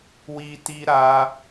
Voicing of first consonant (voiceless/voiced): voiced